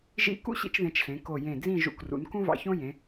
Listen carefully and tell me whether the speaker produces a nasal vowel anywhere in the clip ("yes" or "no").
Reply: yes